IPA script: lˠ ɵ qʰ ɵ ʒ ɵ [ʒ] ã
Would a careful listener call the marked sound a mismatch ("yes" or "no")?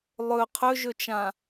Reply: yes